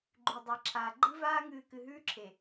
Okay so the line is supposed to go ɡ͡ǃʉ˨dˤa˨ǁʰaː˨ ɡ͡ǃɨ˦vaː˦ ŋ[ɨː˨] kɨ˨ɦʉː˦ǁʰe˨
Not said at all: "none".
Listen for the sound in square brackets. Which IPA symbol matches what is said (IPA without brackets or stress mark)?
ɨː˨